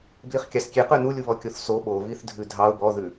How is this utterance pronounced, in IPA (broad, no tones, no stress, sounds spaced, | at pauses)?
b l i χ kʲ ɑ s kʲ e q ʉ n u lʲ u β ɔ kʲ o θ s o ɓ o β i θ dʱ ʉ dʱ ɑ ʊ̯ b ɔ ð ʉ